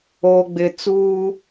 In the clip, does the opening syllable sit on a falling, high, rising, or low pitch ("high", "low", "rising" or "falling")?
low